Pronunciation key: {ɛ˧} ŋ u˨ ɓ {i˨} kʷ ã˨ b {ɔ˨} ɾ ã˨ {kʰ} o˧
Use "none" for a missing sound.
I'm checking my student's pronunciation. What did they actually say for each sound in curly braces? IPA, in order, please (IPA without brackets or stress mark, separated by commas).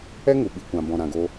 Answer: ɛ˦, i˨, ɔ̃˨, ɡ